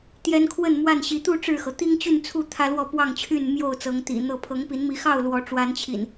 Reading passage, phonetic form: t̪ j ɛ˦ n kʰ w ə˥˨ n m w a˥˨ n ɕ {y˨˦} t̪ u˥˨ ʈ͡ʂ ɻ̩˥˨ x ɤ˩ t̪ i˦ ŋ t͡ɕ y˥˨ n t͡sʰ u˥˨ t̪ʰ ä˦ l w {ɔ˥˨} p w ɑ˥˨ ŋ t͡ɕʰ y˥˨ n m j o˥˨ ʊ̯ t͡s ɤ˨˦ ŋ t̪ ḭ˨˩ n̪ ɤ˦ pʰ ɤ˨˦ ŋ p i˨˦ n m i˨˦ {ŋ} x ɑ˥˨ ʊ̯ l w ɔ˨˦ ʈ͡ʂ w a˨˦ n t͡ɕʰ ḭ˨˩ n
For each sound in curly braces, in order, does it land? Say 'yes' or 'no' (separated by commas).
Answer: no, yes, no